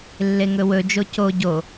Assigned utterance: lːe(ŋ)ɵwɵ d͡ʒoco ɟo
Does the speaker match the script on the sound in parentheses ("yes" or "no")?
yes